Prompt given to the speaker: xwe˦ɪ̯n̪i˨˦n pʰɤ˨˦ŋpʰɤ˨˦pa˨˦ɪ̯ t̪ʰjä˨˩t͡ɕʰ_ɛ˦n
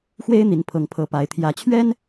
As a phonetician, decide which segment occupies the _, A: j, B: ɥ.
B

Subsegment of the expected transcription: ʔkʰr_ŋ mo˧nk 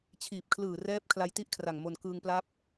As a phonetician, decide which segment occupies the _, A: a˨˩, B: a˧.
A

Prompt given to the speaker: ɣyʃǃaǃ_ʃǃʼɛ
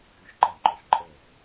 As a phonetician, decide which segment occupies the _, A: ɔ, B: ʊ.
A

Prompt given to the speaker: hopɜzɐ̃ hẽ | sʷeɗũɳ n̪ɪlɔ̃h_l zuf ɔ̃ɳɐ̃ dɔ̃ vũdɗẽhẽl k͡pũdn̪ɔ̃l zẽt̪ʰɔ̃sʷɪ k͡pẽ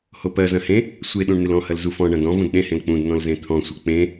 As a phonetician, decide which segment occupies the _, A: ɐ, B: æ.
A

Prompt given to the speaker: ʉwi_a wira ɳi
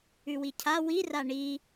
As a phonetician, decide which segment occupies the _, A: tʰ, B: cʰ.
B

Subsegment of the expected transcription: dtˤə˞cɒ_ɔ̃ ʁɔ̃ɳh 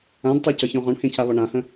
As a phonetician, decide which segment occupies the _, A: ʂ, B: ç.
B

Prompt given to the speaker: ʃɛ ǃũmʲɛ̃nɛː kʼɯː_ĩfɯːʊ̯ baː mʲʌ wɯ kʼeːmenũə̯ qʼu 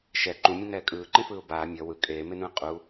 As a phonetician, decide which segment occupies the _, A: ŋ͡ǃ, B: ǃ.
B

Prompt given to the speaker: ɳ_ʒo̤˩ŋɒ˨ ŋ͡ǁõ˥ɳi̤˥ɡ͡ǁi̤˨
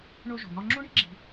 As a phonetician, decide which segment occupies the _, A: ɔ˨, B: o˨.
B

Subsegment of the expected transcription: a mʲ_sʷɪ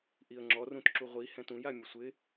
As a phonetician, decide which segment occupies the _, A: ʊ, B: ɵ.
A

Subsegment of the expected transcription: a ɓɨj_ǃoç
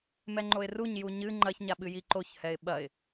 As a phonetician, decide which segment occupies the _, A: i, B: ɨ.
A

